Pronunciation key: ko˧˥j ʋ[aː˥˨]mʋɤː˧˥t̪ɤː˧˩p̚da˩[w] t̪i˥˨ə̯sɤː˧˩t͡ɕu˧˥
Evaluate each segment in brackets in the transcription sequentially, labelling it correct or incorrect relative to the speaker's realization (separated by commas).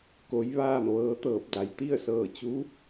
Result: correct, incorrect